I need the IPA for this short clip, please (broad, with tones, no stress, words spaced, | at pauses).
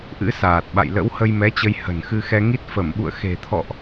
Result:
ʔɨ̰˧˥saː˨˩t̚ɓa̰˧˨j lə̰˧˥whə˧jmɛ˨˦t͡ɕə˧j hə̤˨˩nxɨ˧xɛ˧ŋi˦˥t̚ fə˧˩mɓṵ˧˨ə̯ xe̤˨˩ t̪ʰɔ̰˧˨ʔ